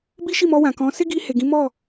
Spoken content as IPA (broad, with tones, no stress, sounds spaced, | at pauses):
b i˦ ʃ i˦˨ m ɔ˧ w ã˨ k ɔ̃˨˦ s e˦ ɡ i˧ h e˨ ɡ ĩ˨˦ m ɔ˦˨